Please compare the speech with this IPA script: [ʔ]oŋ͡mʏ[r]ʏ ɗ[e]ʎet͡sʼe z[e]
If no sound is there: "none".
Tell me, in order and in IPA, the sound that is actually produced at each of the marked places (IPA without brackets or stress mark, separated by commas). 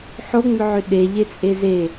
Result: ħ, ʕ, e, e